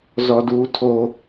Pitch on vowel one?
high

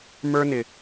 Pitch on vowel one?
high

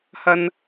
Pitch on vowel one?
low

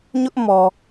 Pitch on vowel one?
high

